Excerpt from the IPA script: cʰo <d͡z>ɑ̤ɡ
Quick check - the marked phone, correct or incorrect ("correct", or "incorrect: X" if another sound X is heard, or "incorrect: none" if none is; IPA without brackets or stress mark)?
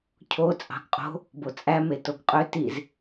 incorrect: t͡sʼ